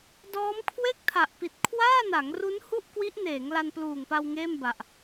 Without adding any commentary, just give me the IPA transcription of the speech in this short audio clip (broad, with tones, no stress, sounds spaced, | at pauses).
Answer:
d ɔː˦˥ m kʰ w e˥˩ k̚ tʰ a˨˩ ʔ p i˨˩ t̚ kʰ w aː˥˩ n a˩˦ ŋ r u˦˥ n h u˥˩ ʔ k w i˦˥ ʔ n eː˩˦ ŋ l a˧ n p l uː˨˩ ŋ p a˧ w ŋ eː˥˩ m b a˨˩ ʔ